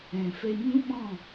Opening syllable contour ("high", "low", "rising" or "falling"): low